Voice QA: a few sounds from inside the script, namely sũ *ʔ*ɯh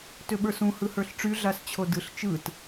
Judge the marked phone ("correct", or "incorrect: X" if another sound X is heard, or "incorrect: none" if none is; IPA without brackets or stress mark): incorrect: h